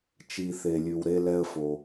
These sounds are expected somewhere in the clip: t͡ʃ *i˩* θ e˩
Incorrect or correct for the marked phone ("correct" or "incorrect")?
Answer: correct